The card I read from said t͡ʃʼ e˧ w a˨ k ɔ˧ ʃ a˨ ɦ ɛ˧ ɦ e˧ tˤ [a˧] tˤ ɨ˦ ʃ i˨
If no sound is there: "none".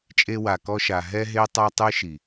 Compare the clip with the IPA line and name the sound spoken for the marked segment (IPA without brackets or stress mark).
a˧